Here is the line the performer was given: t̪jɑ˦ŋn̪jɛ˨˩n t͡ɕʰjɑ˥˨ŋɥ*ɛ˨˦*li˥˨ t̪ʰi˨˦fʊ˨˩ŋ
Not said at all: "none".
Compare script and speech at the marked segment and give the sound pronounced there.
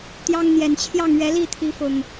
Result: ɛ˨˦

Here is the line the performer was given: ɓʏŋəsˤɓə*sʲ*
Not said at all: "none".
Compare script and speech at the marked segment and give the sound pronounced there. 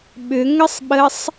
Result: sˤ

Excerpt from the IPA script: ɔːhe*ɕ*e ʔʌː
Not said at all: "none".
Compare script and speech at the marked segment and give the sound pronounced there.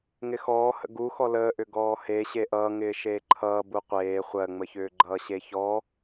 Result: ɕ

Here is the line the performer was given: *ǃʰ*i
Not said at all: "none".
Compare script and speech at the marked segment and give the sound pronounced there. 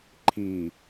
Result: ǃʰ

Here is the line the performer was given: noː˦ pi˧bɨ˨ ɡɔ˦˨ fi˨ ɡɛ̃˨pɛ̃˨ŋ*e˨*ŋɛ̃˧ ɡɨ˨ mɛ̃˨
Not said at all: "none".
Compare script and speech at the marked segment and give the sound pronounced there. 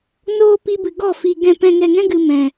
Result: ɛ˨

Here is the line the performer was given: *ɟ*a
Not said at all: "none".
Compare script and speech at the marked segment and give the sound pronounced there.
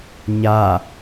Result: ɲ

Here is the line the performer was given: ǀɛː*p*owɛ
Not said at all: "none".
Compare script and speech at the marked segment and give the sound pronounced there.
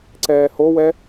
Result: h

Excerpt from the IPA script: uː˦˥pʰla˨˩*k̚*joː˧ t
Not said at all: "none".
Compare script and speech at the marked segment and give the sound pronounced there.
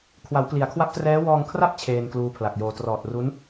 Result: k̚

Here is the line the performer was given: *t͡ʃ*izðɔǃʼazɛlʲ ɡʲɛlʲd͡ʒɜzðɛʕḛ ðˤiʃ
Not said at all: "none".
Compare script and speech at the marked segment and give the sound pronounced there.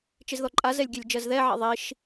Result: t͡ʃ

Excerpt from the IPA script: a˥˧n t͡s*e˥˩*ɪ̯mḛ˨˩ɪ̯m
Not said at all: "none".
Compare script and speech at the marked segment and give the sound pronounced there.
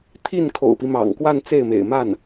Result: e˥˩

